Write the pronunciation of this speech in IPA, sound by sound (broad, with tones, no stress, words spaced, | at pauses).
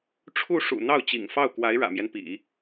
ʈ͡ʂʰu˥˩ ʂṵ˨˩ n̪ɑ˥˩ʊ̯t͡ɕḭ˨˩ŋfɑ˥˩ʊ̯ kwa˧˥ɪ̯ɻä̰˨˩mjɛ˦npḭ˨˩˦